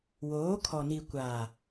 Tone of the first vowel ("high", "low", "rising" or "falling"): rising